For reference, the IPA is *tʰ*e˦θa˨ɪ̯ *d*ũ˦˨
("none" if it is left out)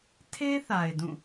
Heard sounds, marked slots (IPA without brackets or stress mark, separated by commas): tʰ, d